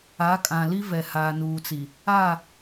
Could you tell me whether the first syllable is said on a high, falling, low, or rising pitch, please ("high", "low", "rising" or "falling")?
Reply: rising